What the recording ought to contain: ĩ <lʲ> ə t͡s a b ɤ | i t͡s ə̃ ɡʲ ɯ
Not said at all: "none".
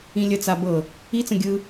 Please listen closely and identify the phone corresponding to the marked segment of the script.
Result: lʲ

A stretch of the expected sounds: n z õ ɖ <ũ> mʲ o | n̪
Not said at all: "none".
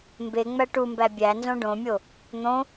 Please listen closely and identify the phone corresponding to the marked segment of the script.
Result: õ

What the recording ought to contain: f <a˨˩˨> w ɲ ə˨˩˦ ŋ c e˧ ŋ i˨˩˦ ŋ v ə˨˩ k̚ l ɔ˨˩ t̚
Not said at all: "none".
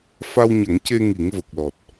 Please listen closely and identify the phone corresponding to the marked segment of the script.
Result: a˧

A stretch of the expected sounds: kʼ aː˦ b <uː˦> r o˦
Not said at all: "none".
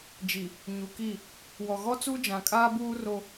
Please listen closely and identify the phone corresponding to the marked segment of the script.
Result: uː˦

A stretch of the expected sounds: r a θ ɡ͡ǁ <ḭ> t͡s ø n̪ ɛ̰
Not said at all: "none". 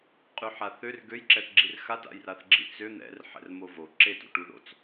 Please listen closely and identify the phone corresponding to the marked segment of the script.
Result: ḭ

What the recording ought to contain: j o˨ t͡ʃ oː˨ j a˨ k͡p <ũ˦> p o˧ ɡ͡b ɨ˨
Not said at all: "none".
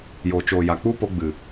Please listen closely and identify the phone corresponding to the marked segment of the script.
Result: u˦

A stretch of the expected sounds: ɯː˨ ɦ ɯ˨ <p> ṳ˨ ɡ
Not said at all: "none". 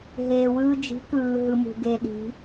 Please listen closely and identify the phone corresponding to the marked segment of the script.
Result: m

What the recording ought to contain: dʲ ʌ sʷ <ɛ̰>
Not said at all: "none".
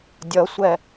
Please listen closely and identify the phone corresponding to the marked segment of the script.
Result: ɛ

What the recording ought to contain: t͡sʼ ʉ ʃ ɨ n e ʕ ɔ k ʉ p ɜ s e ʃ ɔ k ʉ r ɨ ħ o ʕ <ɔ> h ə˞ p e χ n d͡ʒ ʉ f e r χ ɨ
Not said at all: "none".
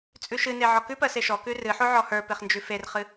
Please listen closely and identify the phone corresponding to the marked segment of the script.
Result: ɔ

